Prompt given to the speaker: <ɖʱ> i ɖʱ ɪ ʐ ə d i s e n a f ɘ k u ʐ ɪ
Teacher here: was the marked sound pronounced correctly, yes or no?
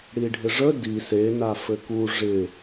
no